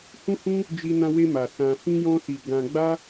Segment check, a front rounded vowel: absent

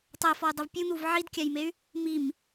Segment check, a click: absent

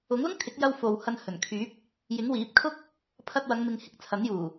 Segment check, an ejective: absent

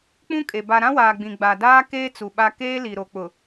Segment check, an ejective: present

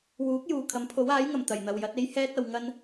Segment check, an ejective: absent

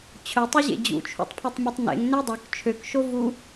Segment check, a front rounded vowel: present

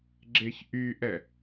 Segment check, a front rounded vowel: present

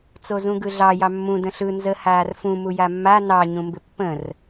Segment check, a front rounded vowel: absent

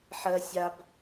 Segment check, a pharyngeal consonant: present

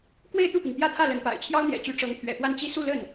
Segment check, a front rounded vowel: present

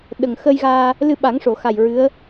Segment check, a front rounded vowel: absent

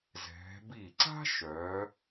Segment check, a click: present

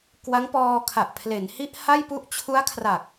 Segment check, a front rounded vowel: absent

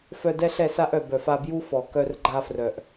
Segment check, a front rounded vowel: present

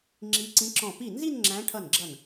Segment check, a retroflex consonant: present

